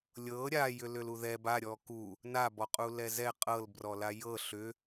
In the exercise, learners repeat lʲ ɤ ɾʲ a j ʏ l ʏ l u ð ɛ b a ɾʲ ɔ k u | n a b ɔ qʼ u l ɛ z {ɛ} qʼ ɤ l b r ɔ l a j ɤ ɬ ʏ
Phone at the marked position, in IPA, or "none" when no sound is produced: ɛ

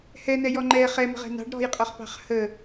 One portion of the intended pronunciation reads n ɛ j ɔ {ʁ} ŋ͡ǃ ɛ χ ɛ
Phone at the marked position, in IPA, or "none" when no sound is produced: none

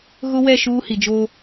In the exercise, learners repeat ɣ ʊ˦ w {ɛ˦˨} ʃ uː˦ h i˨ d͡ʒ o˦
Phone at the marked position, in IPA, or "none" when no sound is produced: ɛ˦˨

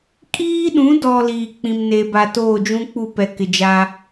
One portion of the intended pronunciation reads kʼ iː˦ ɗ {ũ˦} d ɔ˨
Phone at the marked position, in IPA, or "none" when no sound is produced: ũ˨˦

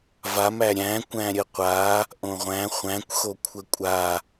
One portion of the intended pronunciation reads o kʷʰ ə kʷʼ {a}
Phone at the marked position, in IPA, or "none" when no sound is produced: a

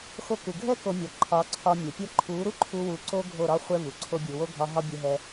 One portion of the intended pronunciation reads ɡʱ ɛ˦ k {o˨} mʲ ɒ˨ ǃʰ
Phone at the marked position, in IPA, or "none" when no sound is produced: o˧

